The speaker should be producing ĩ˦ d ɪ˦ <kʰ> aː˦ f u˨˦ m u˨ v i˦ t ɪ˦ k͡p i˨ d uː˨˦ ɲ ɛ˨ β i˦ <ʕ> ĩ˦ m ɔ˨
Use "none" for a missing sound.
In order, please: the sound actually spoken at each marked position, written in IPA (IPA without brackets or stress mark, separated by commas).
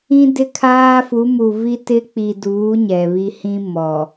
kʰ, h